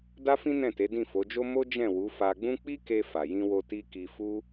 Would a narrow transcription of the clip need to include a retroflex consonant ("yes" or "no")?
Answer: no